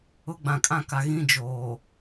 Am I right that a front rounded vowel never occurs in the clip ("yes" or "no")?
yes